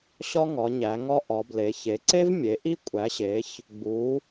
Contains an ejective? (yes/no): yes